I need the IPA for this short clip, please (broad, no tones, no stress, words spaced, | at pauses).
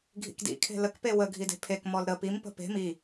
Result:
ɡʱḭkdḭkʰe̤ ləkpe wə ɡʱide̤pʰekmɔl ɾə pimpə̤ pe̤ mi